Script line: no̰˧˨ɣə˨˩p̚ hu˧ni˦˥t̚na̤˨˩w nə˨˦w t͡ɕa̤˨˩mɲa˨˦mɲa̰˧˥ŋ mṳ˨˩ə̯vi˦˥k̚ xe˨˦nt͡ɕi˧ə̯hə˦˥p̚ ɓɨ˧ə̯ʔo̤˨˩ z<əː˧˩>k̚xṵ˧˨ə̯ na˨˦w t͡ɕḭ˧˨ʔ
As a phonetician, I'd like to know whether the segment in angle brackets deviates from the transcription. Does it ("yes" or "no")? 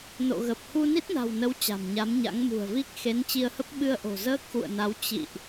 yes